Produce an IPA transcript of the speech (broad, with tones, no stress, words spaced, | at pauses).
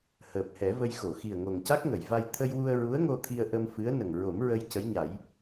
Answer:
həː˨˩p̚hɛ˨˩˦və˧j xo˨˩˨xi˨˩ə̯ ŋo˨˩ŋca˦˥k̚ŋə˨˩˨jva˧j t̪ʰə˧jwu˧ə̯ ɹu˧˥ə̯ŋo˧t̪ʰi˧ə̯ ʔə˧m fɨ˧˥ə̯ nə˨˩ŋ ɹo˨˩˦m ɹə˧j cə˧˥jɲa˨˩˦j